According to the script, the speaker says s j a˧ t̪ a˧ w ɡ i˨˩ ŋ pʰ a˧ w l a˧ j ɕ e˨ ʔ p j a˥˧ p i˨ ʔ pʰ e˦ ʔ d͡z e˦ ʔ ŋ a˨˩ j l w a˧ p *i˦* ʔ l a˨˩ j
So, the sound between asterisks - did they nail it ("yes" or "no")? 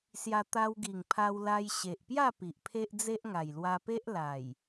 no